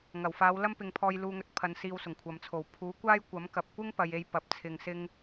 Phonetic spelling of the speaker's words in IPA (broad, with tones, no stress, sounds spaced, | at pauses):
ŋ ɐ˨˩ w f aː˨˧ w l ɐ˥ m p ɪ˨˧ ŋ pʰ ɔː˧ j l uː˧ ŋ ɵ˧ t̚ pʰ ɐ˨˧ n s iː˧ w s ʊ˨˩ ŋ kʷʰ ɐ˨ m t͡sʰ o˨˩ w pʰ uː˨˥ kʷ aː˥ j kʷ ɐ˨˥ m k ɐ˨ p̚ kʷ ɪ˥ ŋ p ɐ˨ j e˨˧ j p ɐ˨ p̚ t͡sʰ ɪ˧ ŋ s ɪ˥ ŋ